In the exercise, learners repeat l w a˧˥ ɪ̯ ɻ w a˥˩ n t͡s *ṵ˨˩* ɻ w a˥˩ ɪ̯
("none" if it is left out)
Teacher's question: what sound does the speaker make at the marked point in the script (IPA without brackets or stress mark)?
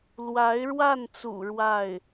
ṵ˨˩